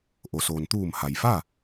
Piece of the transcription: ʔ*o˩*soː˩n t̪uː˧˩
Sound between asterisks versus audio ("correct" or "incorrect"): correct